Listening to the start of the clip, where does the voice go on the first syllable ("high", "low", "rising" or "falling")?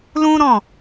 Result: high